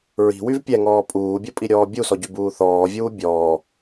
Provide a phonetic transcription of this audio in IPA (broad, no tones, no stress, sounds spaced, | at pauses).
ɹ i̤ w y v pʲ ɛ ŋ ɔː pʼ uː bʲ o pʼ i ɾʲ ɔː bʲ u s ɔ ɟ y b uː θ ɔː vʲ uː bʲ ɔː